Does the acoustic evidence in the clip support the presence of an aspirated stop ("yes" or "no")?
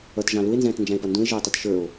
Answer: no